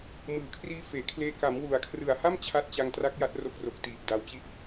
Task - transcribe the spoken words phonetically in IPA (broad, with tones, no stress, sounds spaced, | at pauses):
m ɯː˩˦ kʰ r iː˧ f eː˩˦ kʰ l eː˧ k a˩˦ m w u˩˦ a̯ kʰ r ɯ˨˩ a̯ h a˥˩ m t͡ɕʰ a˦˥ t̚ t͡ɕ a˧ ŋ t r a˦˥ k̚ j a˦˥ t̚ r o˦˥ k̚ r o˨˩ k̚ t iː˨˩ p̚ d a˧ w t͡ɕ i˥˩ ʔ